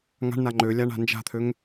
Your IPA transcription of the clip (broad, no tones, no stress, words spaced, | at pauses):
ŋa̤ɳna ŋ͡ǃølʲaɳa̤ nd͡ʒa̤t̪ʰøŋ